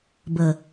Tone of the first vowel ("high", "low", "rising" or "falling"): low